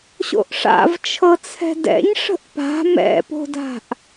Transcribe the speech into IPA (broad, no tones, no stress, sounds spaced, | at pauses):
ɕ o̰ ʔ ʂ a̰ v t͡ʃʰ ɤ t͡sʰ ɛ̤ d ɛ̰ ɲ ʂ ə̤ ʔ p a̤ m ɛ̰ p o̤ d a̤ ʔ